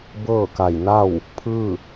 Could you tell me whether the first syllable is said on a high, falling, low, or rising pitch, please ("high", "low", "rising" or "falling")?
falling